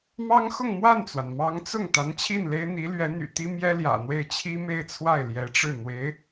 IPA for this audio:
mɑ˥ŋ xʊ˥˧ŋ mwa˥˩nt͡swa˩n mɑ˧˥ŋt͡sʊ˥˩ŋ t̪a˧˥nt͡ɕʰi˥˩nle˥ɪ̯ n̪i˧˥lɥɛ˧˥n̪y̰˨˩ t̪i˥mjɛ˥ljä̰˨˩n̪we˥˩ɪ̯ t͡ɕʰi˥me˥˧ɪ̯t͡sʰwa˥˩ɪ̯ ljɛ˧˥ʈ͡ʂɻ̩˥˩ n̪we˧˥ɪ̯

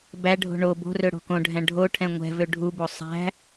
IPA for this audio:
bæɖʱo̤ ɳo bo̤rø ɽo̤kõɖʱæ̃ ɖʱoʈʰɛ̃ ŋʷɛ̤vø ɖʱubo sˤæ̤

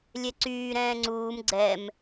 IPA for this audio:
lʲɛǀyː ɾɛ̃ːŋ͡ǀuːm ɡ͡ǀɛm

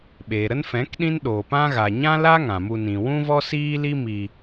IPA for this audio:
ɓeː˨ ɾə˦nfɛ̃˨˦kɗĩ˦n ɗoː˨pã˦ɣa˨ ɲã˦la˦ ŋã˨mu˧nĩ˨ wũ˦vɔ˦siː˦li˦ mi˧

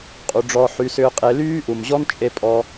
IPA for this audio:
qʼu˩˧ɖ͡ʐɔ˧ ħy˧˥sʏː˥qʼe˧˥ lyː˥ʔu˩mʑɔ˥nt͡ʃʼe˧ pʼɔ˧

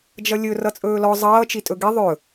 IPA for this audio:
d͡ʒʌlʲɵ rʌt͡sʼɵːlɔ zˤʌː t͡ʃitʼɵɡi ðˤɵ

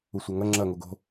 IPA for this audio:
usʷɐŋɐ ŋ͡ǁɐ ŋoɡo̤

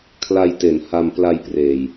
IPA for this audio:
kʰla˧jte˩˦n ha˧m pla˧jpreː˨˩j

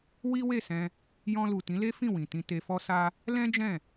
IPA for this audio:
wi˦we˦˨sɛ̃˧ | jɔ̃˧lu˨ tĩ˨˦le˦fĩ˦˨ wĩ˨tĩ˧ te˧fɔ˦sa˦ | lɛ̃˦ d͡ʒɛ̃˦˨

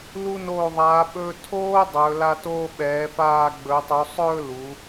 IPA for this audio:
lu˧ noː˧˩ðˤaː˩˧ɓɵː˧ tʰoː˥dˤɵː˩˧la˧ toː˧ɓɛː˩˧faː˧˩ ɡ͡bɵ˩˧tˤu˩˧sˤɵː˥˧ lu˩˧

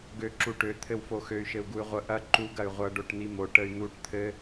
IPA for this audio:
ɡø ǁuʈø t̪ʰɘwfoxøy̯ ʃɘu̯ɡuy̯ʁʷə ʔɐ ǃuɡ ɐy̯ʁʷʌ ɖoʈn̪imo ʈəy̯n̪uʈ t̪ʰɘ

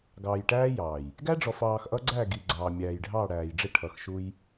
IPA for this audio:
ɡɑː˨jʈæː˦jɑː˨j | ɡæ˦ɖ͡ʐɔ˨fɑː˨x ʔʌ˦ɡ͡ǀæ˦˨ɡi˨ ɡ͡ǀɑː˨mʲæː˨j ɖʱɑː˦˨ɽæː˨jɖ͡ʐɪ˦ ʈʰʌ˨xʃu˦j

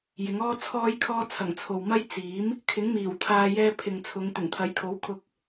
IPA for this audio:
jɪ˨˥ŋɔː˥t͡sʰɔː˥jkʰɔː˥ t͡sʰɐ˨˩ŋt͡sʰo˨wmɐ˥j t͡siː˨˥m | kʰɪ˨˥ŋmiː˨˩w t̪ʰaː˧ jɛː˧ pʰɪ˨ŋt͡sʰʊ˨˧ŋ t̪ɪ˨˩ŋt̪ʰɐ˨˥jkʰo˨˥wkʰʊ˧k̚

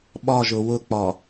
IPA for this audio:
ɓɒʒʊ wʊk͡pɒ

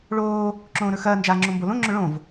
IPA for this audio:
ɭoː | ǁõːɾɵxɐː nd͡ʒaːŋ͡ǁõmbolõ ŋ͡ǁɵɭõv

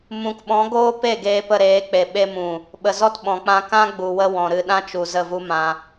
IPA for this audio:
mũ˨kɓɔ̃˨˦ ɡoː˦pe˦˨ ɡeː˧pə˧ɾeː˨˦k͡pe˨ ɓe˧mũ˨ | ɓə˨zɔ˦tɓɔ̃˨k͡pã˧ kã˦ ɡ͡bu˨wə˧ wɔ̃˨ɾɨ˧ɗã˦t͡ʃu˨ zə˦˨vu˦mã˧

